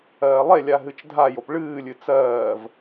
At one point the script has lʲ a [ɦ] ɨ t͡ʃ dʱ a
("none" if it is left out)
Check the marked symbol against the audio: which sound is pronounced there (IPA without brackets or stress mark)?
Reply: ɦ